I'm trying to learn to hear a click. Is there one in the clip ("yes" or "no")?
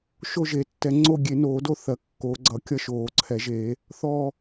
yes